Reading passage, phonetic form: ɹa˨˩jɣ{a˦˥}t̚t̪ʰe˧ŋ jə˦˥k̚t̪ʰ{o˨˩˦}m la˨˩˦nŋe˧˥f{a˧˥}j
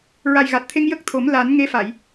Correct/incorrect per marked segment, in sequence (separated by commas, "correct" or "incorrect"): incorrect, correct, incorrect